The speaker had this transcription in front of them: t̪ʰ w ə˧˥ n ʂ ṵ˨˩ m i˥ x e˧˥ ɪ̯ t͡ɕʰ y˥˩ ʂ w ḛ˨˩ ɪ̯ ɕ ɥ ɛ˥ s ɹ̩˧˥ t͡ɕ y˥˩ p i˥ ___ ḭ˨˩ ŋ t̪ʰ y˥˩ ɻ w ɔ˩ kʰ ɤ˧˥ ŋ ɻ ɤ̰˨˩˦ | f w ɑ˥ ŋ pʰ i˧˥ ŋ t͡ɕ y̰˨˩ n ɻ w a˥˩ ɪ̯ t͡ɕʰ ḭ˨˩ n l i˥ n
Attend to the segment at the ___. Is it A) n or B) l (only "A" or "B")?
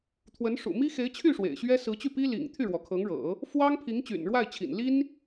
B